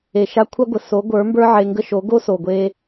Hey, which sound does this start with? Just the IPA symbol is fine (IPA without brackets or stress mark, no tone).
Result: e